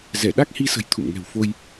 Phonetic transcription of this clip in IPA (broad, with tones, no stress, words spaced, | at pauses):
zɛ˧˩ɗa˦˥k̚hi˧sə̤˨˩j t̪ʰṵ˧˨mŋɛ̤˨˩w fo˧j